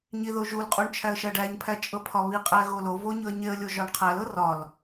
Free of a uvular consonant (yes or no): no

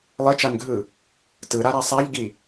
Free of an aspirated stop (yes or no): yes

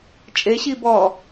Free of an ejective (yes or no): no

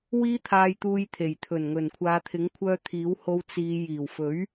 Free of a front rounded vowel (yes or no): no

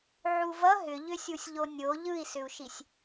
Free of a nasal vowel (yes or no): yes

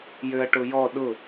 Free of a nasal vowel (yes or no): yes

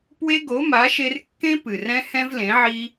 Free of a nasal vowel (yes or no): no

